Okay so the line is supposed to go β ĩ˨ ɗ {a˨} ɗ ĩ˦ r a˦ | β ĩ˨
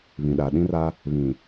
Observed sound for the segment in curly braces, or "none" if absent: a˨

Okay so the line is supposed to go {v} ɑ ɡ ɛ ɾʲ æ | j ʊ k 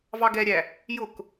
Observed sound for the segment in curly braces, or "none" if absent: v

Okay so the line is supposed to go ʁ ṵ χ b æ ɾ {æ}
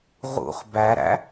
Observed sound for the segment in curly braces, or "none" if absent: æ̰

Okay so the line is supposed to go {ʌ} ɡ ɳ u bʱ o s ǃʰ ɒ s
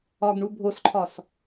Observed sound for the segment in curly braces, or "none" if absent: ɒ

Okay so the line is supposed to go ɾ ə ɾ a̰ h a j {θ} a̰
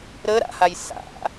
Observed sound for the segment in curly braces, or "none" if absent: s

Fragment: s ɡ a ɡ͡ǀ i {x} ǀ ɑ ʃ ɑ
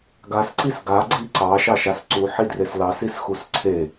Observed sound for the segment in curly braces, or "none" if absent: none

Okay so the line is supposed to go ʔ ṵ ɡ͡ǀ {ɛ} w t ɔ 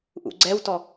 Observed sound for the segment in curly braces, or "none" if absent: ɛ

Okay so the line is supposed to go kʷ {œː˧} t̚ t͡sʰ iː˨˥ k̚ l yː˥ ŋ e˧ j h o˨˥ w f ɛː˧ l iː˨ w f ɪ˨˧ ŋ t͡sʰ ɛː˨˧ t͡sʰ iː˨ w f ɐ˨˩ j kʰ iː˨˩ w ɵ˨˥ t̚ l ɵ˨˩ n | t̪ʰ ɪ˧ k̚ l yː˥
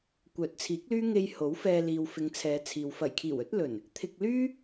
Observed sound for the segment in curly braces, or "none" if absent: œː˨˥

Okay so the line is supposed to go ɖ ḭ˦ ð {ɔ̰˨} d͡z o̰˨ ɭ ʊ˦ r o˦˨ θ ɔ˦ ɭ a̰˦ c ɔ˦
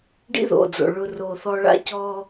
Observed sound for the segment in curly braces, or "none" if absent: o̰˨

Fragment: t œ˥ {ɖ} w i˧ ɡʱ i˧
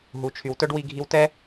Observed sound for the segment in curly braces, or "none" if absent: ɖ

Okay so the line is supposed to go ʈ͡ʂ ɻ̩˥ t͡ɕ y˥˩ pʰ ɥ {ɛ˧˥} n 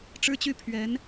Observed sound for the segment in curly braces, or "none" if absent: ɛ˧˥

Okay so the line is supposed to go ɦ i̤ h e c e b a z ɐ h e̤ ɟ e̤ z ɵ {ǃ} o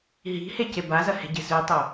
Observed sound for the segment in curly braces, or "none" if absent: tˤ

